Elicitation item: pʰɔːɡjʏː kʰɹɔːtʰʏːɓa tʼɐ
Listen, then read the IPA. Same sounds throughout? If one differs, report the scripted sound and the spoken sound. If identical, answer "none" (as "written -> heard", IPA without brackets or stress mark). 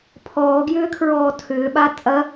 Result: none